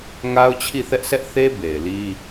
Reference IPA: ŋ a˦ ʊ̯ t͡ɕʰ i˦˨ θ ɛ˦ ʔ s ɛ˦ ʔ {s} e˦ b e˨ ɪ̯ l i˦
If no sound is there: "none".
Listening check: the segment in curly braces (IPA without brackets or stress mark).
θ